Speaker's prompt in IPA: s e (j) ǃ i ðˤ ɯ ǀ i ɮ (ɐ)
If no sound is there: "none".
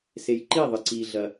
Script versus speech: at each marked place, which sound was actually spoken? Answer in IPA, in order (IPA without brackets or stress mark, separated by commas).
j, ɐ